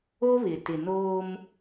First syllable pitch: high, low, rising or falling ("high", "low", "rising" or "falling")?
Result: high